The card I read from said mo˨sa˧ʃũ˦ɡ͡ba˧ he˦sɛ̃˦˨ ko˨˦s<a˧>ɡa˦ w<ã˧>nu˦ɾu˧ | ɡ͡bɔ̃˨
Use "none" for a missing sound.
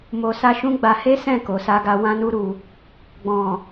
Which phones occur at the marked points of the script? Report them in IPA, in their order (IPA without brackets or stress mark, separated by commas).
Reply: a˦, ã˦